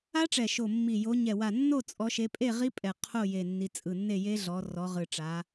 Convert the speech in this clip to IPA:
a˦˥ ʈ͡ʂ ɛ˧˩ ʃ o˧˩ mː i˧˩ j o˨˦ ɲ ɛ˧˩ w a˧˩ nː o˥˨ t͡sʼ ɔ˨˦ ʃ e˨˦ pʼ e˥˨ ʁ i˦˥ pʼ ɛ˧˩ qʰ o˥˨ j e˧˩ nː i˨˦ t͡sʼ ɯ˧˩ nː e˥˨ j e˦˥ ɮ ɔ˨˦ r ɔ˨˦ ʁ ɯ˧˩ ʈ͡ʂ a˨˦

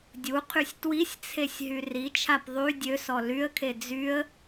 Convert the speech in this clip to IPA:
dʲ u qʰ y sʲ t w i sʲ t͡sʰ e sʲ ɦ y r i t͡ʃʰ a p ðˤ y dʲ ø s ɔ l y ə̯ kʰ e d͡z y ə̯

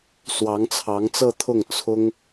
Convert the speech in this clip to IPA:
s w ɑ˧˥ ŋ t͡sʰ ɑ˧˥ ŋ t͡s ɤ˥˧ t̪ʰ ʊ˥˩ ŋ t͡sʰ ʊ˥ ŋ

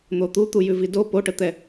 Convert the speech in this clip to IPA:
n̪ o t̪ u t̪ u j ʉ v i d o p o ʈ ə t̪ ɛ

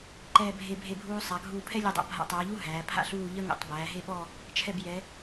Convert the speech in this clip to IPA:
ǃ ɛː˧˩ bʱ e˧˩ bʱ e˧˩ bʱ uː˧ sˤ a˩˧ ɡʱ uː˧˩ pʰ ɛ˥ lʲ u˧˩ dˤ a̰˧ bʱ a̰˧ tˤ ɛː˩˧ ʎ u˥ ɦ æː˩˧ pʰ a̰˥ ɬ uː˥˧ ʎ ə˥ ŋ ṵ˧˩ tˤ b æː˩˧ ɦ e˥˧ ɓ ɔ˥˧ | t͡ʃʰ ɛ˧˩ b j ɛ˩˧

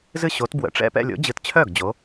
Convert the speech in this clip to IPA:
z ɨ˥˧ ɕ o˨˥ t b w ə̰˨˩˦ ʈ͡ʂ ɛ̰˥˧ p ɛ̰˥˧ lʲ o̰˨˥ d͡ʑ ɨ˨˥ t t͡ɕʰ œ˥˩ ɡ d͡ʑ o˨˥

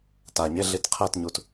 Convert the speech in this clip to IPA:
t a ɲ e ɮ i t qʰ ɛ t ɲ u t

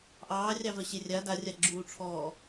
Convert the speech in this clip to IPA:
ʔ ɑː rʲ ɑ v œ ɕ e rʲ a d a rʲ a ɡ͡ǁ uː ʈ͡ʂʰ ɔː

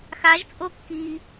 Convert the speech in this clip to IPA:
x a ʒ t͡sʼ o kː i

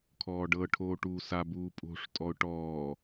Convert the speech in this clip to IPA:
kʰ ɔː ɖ ɤ ʈʰ oː ʈ uː s a b uː pʼ o̤ ʂ tʼ ɔ ʊ̯ ʈ ɔː

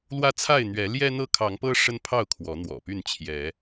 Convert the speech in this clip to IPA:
l w ä˦ t͡sʰ a˥˨ ɪ̯ n̪ ɥ ɛ˨˦ l j ɛ˦ n̪ ɤ˦ kʰ ɑ˨˦ ŋ p ɤ˦ ʂ ə˦ n pʰ ɑ˥˨ ʊ̯ kʰ w ɔ˨˦ n̪ w ɔ̰˨˩ p y˥˨ n t͡ɕʰ j ɛ˨˦

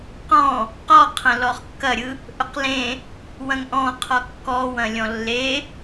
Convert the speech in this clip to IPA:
q ɔ̃ | q ɔ qʰ ɐ̃ l ɔ χ kː ɐ ɾʲ ɯ | ʔ ɵ q l ẽ | w ɐ̃ ŋ ʔ ɔ̃ qʰ ɔ kː ɔ w ɐ̃ lʲ ɔ̃ lː e

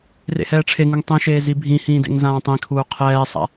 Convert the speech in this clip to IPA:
r ḛ h ɛː ʈ͡ʂʰ e ŋ u ŋ tˤ ĩ ʃ eː z i bʱ ĩ h ĩː d ḛ ŋ z ãː tˤ ĩ kʰ uː qʰ ɛː sˤ a̰

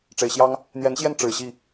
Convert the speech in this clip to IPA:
ʈ͡ʂ e˨˩ ɪ̯ ɕ j ɑ˦ ŋ | n̪ j ɛ˨˦ n ɕ j ɛ˥˨ n ʈ͡ʂ ɻ̩˨˩ ɕ i˥˨

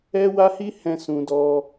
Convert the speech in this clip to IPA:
ɛ˦ w a˦ h i˦ h ɛ̃˧ s ũ˧ d ɔ˧

